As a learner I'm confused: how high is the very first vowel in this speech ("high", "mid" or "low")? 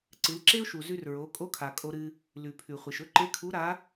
high